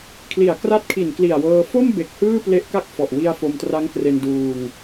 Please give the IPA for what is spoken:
kʰ l i˨˩ a̯ k r a˦˥ t̚ kʰ i˨˩ n k l i˨˩ a̯ w ɤː˧ f o˥˩ m b e˨˩ k̚ h ɯː˥˩ p l e˦˥ ʔ k a˥˩ k̚ f ɔ˨˩ ʔ w i˧ a̯ f o˧ m t r a˦˥ ŋ k r e˧ n d uː˧ ŋ

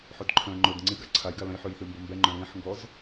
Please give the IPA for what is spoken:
ħ ɵ d ǃʰ œ̃ ŋ͡ǃ ɵ d ŋ͡ǀ i ɡ a ǀʰ a j ɡ a l œ̃ j ħ ʉ j θ ʉ m b ɵ m b ɛ ŋ͡ǃ œ̃ l ĩ ħ ŋ ɡ ɔ z

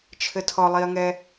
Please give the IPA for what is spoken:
t͡ʃʰ ɘ tʰ ɔ lˠ i ɐ̯ ŋ ɛ

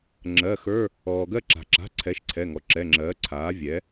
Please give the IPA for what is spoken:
ŋ͡ǁ ɜ˩˧˩ x ə˞˧˥˧ | ɔː˩ ɡ ɜ˦˨ ǁ a̤˩ ǁ a̤˩˧˩ ǀʰ ɛ˩˥ ʃ ǀʰ ɛ˩˧˩ ŋ ɔ˩ ǁ ɛ˩˧˩ ŋ͡ǁ ɜː˩˥ ǀʰ aː˩˥ vʲ ɛ˩˥

